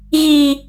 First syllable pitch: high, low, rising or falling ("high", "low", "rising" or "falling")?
low